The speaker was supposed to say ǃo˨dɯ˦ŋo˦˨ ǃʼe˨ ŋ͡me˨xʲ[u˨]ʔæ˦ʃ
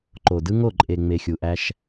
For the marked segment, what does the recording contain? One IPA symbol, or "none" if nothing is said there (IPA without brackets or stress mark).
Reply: u˨